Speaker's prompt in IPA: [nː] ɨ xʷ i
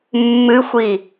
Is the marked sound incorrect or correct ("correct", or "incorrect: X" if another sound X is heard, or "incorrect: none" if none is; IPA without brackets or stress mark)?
incorrect: mː